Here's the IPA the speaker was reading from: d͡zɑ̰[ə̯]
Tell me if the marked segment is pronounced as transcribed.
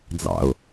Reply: no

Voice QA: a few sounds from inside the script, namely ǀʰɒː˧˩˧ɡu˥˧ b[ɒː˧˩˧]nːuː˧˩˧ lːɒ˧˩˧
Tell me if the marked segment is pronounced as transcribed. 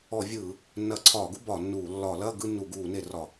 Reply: no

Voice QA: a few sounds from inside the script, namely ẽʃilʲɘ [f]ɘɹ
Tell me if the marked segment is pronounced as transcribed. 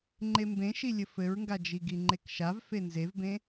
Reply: yes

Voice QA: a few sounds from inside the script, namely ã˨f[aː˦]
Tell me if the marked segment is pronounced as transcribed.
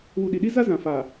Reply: no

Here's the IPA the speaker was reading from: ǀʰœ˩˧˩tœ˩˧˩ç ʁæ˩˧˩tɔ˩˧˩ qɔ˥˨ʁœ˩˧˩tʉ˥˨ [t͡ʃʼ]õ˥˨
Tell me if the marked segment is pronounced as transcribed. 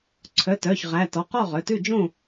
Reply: no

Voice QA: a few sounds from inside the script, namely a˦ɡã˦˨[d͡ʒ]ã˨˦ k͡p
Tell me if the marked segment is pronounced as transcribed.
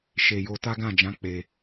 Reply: yes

